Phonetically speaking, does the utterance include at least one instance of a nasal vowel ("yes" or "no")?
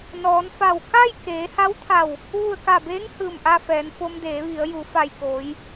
no